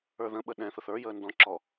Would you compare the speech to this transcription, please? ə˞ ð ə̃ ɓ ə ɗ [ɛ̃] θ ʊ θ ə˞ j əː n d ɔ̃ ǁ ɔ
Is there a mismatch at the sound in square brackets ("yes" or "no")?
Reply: no